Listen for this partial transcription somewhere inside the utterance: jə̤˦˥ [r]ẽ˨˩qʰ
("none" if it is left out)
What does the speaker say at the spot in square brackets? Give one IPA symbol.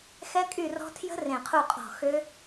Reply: r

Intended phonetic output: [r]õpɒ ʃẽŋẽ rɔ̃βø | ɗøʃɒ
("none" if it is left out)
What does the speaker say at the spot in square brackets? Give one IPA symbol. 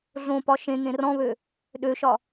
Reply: ɮ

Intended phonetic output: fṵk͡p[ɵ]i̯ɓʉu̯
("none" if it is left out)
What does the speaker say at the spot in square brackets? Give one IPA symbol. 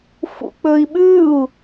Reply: ɵ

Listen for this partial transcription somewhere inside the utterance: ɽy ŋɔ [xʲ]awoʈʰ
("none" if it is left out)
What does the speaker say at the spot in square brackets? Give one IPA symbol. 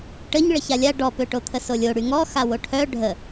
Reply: x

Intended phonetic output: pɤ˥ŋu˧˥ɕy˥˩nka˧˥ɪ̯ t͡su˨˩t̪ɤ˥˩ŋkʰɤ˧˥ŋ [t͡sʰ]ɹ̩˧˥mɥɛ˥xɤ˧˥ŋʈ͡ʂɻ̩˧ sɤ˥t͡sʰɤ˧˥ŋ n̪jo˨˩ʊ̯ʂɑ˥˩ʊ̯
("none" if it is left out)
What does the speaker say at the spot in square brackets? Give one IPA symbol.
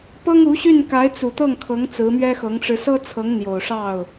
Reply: t͡s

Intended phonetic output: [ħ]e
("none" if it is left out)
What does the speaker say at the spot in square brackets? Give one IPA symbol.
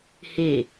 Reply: h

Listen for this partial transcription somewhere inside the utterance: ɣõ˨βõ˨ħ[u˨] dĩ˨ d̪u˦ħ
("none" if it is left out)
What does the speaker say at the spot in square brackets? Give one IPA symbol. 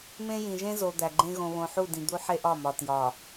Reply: u˦˨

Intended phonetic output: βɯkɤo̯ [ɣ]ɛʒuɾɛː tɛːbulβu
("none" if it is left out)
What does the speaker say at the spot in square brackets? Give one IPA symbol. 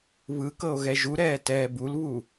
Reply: ɣ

